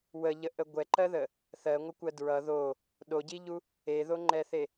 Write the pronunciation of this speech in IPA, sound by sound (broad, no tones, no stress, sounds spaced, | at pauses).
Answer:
w ə ʎ ə ʔ ə ɡʷ ɛ ǃ ɜ ð ə | θ ɜ ŋʷ ɘ kʷ ɜ d ɹ ʌ ð o | ɗ o ɟ i ʎ u | e ð o ŋ͡ǃ ɛ θ e